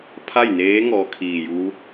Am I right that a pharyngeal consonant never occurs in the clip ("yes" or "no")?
yes